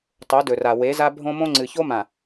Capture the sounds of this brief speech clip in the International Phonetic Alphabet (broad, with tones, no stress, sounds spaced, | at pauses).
tˤ o˨˦ d ɵ˨ r a˨ w e˨˦ z a˦ bʱ õ˦ m õ˦ ŋ͡ǀ ɨ˨ ç o˦ m ã˨